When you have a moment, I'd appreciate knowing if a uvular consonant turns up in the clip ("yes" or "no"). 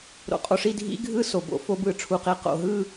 yes